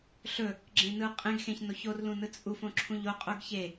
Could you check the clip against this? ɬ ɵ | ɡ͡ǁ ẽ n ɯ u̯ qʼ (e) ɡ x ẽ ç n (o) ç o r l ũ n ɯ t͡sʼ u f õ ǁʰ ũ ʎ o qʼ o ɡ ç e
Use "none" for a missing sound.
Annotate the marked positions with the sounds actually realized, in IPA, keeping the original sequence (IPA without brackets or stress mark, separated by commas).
ẽ, o